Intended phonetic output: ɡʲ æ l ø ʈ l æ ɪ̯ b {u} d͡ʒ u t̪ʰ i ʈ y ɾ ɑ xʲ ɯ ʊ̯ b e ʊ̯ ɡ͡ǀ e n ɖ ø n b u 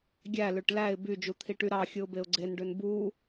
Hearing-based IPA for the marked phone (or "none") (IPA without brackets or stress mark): y